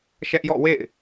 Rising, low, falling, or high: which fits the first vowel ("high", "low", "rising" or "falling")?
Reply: high